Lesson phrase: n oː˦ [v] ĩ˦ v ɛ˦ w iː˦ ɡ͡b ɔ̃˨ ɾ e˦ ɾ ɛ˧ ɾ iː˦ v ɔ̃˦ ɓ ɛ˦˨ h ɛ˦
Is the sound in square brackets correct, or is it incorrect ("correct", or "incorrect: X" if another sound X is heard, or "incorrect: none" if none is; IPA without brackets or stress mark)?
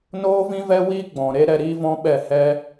correct